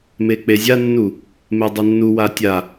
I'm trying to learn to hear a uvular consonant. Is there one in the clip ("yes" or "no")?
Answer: no